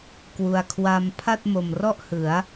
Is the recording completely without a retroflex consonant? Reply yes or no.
yes